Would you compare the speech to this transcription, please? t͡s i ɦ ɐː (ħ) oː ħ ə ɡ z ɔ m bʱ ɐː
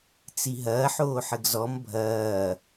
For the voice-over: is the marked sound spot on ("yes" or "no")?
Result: yes